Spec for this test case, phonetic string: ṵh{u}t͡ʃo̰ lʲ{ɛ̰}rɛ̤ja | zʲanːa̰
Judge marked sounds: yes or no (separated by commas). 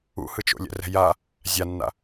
no, yes